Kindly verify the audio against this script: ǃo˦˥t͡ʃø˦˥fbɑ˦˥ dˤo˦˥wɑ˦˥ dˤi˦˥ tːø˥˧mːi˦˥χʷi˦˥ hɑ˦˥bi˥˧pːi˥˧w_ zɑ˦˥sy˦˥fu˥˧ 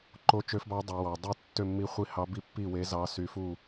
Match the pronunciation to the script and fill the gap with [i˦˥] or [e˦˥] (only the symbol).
e˦˥